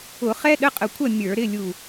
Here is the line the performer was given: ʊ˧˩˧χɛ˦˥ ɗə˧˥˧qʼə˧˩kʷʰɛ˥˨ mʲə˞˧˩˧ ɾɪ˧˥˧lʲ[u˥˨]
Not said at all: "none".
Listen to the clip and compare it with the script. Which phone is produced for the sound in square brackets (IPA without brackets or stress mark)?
u˧˩